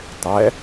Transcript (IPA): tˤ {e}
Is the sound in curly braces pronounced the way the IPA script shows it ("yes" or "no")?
no